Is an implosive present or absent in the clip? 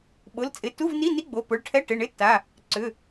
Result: present